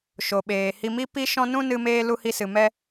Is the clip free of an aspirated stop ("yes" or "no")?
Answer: yes